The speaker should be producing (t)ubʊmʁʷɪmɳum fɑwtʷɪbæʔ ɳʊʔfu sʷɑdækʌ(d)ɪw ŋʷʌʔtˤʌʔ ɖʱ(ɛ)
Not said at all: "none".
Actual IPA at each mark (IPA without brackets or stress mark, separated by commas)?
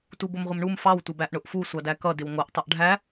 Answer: t, d, æ